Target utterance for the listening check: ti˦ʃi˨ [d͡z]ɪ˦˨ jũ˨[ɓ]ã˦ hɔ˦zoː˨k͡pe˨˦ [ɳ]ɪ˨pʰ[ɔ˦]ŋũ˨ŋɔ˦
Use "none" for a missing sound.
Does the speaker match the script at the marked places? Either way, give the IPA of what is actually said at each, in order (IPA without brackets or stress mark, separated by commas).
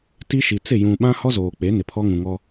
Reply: t͡s, ɓ, n, ɔ˦